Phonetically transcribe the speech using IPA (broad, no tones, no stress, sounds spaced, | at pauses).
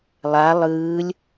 lˠ a lˠ ɯː lʲ